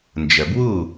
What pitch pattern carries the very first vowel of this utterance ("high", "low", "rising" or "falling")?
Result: low